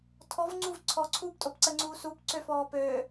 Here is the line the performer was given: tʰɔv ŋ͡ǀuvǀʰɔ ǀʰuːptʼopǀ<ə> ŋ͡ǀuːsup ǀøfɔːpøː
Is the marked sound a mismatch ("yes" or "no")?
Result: no